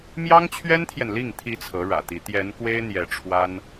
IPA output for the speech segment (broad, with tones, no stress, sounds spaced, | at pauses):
m j ɑ˥ ŋ t͡ɕʰ ɥ ɛ˥ n t̪ʰ j ɛ˨ n l i˥˩ ŋ t̪ʰ i˧˥ t͡sʰ ɤ˧˥ ɻ ä̰˨˩ t̪ i˧˥ t̪ j ɛ˧˥ n k w e˥ ɪ̯ n̪ j ɛ˧˥ ʈ͡ʂʰ w a˥ n